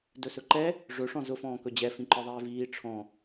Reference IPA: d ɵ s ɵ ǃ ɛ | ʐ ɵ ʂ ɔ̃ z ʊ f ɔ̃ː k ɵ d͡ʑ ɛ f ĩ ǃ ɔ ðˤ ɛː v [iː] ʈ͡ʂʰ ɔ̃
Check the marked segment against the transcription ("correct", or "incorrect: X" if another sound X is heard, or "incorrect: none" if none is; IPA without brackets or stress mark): correct